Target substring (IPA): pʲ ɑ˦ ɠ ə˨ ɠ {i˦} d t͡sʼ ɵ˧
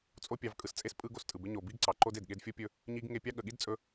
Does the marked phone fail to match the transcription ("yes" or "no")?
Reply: no